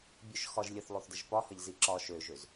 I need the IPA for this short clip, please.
bʲøʃxɒʒ lʲəθlˠoθdɪʒ pɒ hʌʎziǁɒ ʃøʒøz

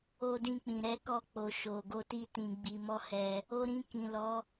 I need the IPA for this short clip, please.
o˧dĩ˧k͡pĩ˨ ɾɛ˨˦ kɔ˧k͡po˨ ʃo˨ɡo˧ti˧ tĩ˨ɡ͡bi˨mɔ˧ hɛ˧ | o˧ɾĩ˧kĩ˨lɔ˨˦

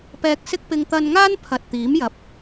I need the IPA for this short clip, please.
pɛː˧k̚sɪ˥k̚pɪ˧ŋ t̪ɐ˧nŋaː˥n pʰɐ˨t̚t̪iː˨˥mjɐ˨p̚

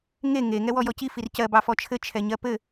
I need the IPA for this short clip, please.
ŋe ŋe ŋɛwɔjɔci fircɜ bɑfɔt͡ʃʰɘ t͡ʃʰɛɲɜpɘ

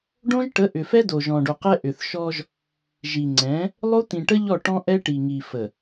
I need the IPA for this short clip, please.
ɖõ˦ʒʈə˨˦ ʔʏ˨fɛ˦ do˨ʒɔ̃˨ɖo˨qɛ˦ ʔʏ˨θ ʃɔ˦ʒ | ʒi˨ŋ͡ǀɛ̃˨˦ | lˠo˦t̪ĩ˨ʈə˦ ʎɔ˦˨ʈɔ̃˦ʔɛ˦ ʈi˨ŋi˨fə˨

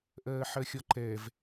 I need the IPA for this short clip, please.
ʔɜːħɜxʲɒǃɛv

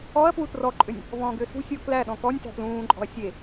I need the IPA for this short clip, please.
ɔɐ̯ pwutrɔǃʼʏnʲ | vɔ̃ːɡʏːsṳsʲʊː klæ ɗɔ̃kɔnʲtæ̤ plũːǃʼɔ̤ɐ̯ sʲe

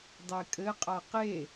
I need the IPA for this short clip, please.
dˤekʼɘ qʼaqe

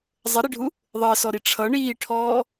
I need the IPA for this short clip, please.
zˤəɾiɖʱu | ðˤəːsɔɾi ʈ͡ʂʰʌ ɳiːʈʰɔː

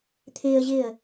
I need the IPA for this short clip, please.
t̪ʰɪːə̯ʑɪːə̯

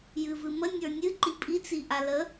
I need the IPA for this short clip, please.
jɨvɨmə nʲə˞nʲɨ ǃipʼi t͡siʔalə

